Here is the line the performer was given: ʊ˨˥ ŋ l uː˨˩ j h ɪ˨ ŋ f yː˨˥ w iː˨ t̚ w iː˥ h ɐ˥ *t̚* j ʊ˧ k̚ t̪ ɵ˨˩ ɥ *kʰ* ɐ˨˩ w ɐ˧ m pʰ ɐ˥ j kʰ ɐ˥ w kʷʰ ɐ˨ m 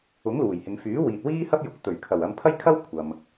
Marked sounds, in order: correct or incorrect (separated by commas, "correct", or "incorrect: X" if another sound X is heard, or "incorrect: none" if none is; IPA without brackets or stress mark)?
incorrect: p̚, correct